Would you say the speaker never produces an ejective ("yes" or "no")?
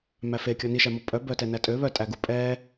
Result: no